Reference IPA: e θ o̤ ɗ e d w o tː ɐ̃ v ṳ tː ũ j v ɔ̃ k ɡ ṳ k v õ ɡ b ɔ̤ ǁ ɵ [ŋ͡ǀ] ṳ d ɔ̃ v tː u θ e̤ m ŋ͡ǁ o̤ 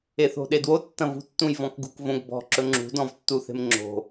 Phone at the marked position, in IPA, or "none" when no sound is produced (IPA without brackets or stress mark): ŋ͡ǁ